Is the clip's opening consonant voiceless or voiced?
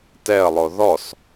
voiceless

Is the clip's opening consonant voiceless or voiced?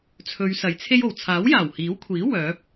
voiceless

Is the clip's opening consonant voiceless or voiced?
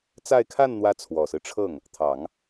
voiceless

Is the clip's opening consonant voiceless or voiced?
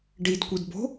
voiced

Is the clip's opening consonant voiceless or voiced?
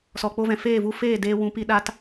voiceless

